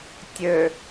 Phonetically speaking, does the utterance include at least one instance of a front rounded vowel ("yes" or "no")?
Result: yes